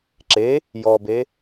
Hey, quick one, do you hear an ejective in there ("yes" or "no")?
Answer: no